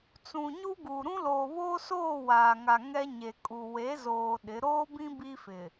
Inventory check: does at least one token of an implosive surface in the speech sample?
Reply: yes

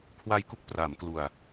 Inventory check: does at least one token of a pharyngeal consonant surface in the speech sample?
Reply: no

